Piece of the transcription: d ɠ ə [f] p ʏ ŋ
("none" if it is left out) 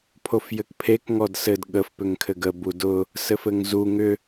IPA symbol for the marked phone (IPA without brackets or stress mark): f